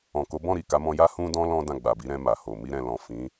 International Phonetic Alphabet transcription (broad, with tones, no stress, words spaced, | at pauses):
ɔ̃˨ko˨˦bɔ̃˦˨ɾi˨ ka˨˦mɔ̃˧ja˦ hũ˧dɔ̃˧ lɔ̃˦ dã˦˨ɡ͡ba˨ bi˨˦ɾɛ̃˧ ma˨ho˨ mi˧ ɾɛ̃˨lɔ̃˨ fĩ˨˦